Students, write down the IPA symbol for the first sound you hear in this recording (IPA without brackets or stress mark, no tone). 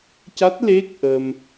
c